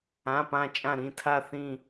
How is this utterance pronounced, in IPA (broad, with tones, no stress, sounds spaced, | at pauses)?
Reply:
ã˩˧˩ p ã˧˩ t͡ʃʼ ã˧˩ ɾ ĩ˧˩ tʰ a˧˩ θ ĩ˧˩